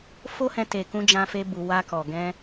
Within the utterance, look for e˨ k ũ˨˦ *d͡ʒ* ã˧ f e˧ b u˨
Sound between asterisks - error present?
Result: no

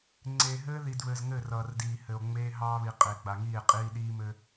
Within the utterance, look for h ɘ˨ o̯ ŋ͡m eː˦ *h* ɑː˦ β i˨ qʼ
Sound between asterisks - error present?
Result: yes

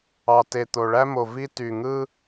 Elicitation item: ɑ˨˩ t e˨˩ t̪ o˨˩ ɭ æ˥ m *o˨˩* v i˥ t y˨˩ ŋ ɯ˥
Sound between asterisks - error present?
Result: no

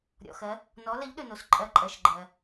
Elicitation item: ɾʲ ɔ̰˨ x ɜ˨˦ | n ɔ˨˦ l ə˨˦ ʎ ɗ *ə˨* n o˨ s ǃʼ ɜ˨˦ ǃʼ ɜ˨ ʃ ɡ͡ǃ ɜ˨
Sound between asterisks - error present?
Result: yes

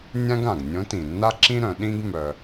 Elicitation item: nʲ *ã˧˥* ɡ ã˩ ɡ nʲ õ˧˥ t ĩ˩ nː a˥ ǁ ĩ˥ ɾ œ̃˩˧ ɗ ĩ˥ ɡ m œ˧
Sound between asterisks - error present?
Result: yes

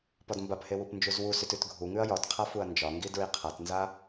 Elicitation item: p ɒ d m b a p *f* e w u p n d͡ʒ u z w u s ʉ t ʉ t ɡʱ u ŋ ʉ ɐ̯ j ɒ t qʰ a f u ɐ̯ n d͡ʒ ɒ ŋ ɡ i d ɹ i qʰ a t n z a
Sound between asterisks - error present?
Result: yes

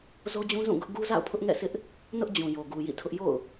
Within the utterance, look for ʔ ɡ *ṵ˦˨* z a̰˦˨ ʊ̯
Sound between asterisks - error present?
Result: yes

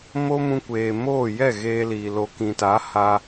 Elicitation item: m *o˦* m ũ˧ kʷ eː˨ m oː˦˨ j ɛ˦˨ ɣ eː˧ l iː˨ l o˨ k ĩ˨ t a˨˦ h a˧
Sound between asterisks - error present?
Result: no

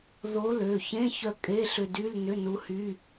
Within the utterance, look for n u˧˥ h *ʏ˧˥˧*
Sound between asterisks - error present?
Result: yes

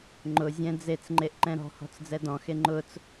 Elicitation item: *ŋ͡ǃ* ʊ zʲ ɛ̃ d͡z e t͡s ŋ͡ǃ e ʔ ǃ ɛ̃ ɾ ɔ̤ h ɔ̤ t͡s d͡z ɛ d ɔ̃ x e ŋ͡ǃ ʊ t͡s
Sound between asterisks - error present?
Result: no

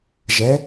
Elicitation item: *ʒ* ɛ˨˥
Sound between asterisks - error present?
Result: no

